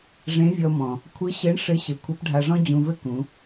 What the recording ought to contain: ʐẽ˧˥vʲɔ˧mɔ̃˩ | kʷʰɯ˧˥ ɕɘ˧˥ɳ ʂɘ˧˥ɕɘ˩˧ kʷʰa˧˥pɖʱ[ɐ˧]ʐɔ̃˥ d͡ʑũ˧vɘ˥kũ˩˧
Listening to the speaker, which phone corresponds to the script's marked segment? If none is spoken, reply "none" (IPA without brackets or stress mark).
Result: a˧